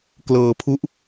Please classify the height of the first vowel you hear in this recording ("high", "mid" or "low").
mid